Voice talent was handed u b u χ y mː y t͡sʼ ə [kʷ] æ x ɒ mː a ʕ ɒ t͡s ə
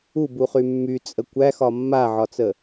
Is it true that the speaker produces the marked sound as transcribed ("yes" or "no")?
yes